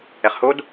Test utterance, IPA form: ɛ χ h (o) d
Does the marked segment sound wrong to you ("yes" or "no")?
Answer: no